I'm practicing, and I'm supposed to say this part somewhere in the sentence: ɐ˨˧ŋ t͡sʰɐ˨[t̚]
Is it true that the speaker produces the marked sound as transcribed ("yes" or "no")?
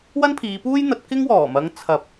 no